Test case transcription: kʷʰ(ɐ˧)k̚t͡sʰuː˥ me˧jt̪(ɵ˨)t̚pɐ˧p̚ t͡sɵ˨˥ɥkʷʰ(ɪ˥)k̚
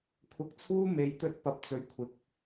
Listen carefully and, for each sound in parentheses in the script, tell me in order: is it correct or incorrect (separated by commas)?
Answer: correct, incorrect, incorrect